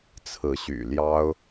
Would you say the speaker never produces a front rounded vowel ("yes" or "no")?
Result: no